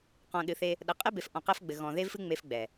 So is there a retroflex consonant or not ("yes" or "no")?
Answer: no